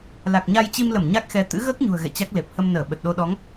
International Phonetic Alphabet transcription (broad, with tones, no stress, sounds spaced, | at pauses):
l a˨˩ k̚ ɲ a˧ j t͡ɕ i˧ m l ə˧˩ m ɲ a˦˥ k̚ x ɛ˨˦ t̪ ɨ̰˧˥ ɣ əː˦˥ k̚ ɲ ṳ˨˩ ə̯ ɣ ɛ̰˧˨ t͡ɕ a˦˥ k̚ l e˨˩ p̚ h ə˧ m n əː˧˩ ɓ ə˨˩ t̚ ɗ o˧ ɗ ɔ˨˦ ŋ